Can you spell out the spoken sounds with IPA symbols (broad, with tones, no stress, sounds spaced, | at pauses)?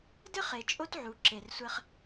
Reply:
d ɘ˦ χ e˨ t͡ʃʼ o˦ t ʕ u˨ ǁ e˨ r sʷ ɛ˦ χ